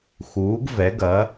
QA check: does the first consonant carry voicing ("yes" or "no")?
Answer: no